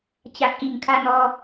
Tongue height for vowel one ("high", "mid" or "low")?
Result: low